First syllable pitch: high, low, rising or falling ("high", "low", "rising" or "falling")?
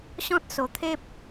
high